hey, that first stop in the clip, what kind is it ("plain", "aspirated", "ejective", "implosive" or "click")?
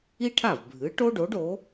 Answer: aspirated